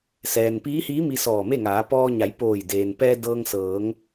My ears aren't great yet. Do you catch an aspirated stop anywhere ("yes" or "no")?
no